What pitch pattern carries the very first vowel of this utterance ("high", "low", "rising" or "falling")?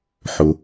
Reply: low